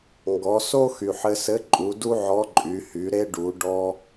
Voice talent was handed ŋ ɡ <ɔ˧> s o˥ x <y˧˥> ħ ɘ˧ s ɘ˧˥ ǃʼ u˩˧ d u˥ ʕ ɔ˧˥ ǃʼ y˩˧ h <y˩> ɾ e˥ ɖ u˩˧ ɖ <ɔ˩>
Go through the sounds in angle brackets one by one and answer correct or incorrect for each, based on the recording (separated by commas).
incorrect, incorrect, incorrect, incorrect